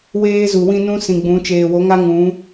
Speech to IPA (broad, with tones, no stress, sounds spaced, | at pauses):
w eː˦ z u˨ w ĩ˦ n ũ˦ s ĩ˨ ɡ͡b ũ˨˦ t͡ʃ eː˨ w o˨˦ ŋ a˦ ŋ ũ˨˦